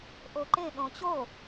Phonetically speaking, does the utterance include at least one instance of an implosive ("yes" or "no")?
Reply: yes